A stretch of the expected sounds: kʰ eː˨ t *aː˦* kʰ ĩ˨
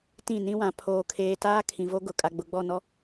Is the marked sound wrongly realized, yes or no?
no